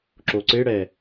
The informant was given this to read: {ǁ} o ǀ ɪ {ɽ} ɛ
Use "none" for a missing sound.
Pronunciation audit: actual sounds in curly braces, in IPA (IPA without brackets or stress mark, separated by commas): ǁ, ɽ